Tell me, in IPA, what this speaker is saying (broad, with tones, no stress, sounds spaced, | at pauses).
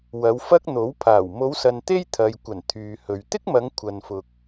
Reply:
w ɐ˨˧ w f ɐ˥ k̚ n̪ o˨˥ w pʰ aː˨˩ w m o˨˧ w s ɐ˨ n t̪ e˥ j t̪ʰ ɐ˨ j kʷ ɐ˨˩ n t̪ʰ yː˨ h ɵ˨ ɥ t̪ ɪ˥ k̚ m ɐ˨˧ ŋ kʷʰ ɐ˧ n f ʊ˧ k̚